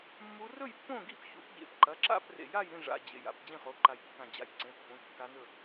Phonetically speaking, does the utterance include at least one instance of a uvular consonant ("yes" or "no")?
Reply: yes